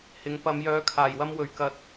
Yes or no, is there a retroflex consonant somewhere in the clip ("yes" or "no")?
no